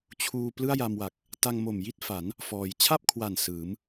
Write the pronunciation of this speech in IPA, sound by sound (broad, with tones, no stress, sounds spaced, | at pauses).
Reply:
t͡ɕʰ uː˧ p l ɯ˥˩ a̯ j a˧ m w a˨˩ k̚ | t a˧ ŋ m o˨˩ m j i˥˩ t̚ f a˩˦ n | f ɔː˩˦ j t͡ɕʰ a˥˩ p̚ kʰ w a˨˩ n s ɯː˩˦ m